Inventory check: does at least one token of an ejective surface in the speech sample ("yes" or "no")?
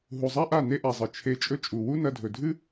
yes